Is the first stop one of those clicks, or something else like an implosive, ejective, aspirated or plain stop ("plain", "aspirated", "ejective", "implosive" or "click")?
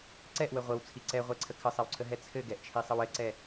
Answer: click